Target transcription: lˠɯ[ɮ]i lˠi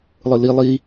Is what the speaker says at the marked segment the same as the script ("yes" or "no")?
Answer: no